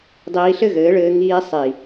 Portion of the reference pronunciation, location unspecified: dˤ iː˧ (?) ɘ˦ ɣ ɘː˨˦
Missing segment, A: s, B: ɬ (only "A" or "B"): B